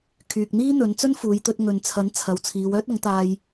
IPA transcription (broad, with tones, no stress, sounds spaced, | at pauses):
kʰ yː˨ k̚ n̪ iː˥ n̪ ɵ˨˧ n t͡s ɵ˥ n f uː˨˧ j t̪ ɵ˧ t̚ ŋ ɵ˨ n t͡sʰ ɐ˨˥ n t͡sʰ ɐ˨˧ w t͡sʰ iː˨˧ w œː˥ t̚ ɐ˨˥ ŋ t̪ aː˧ j